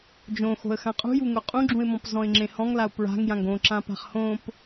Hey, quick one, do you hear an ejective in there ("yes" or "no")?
yes